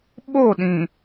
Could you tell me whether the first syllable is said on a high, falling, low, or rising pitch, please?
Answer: falling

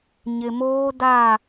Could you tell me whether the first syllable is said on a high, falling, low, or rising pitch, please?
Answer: low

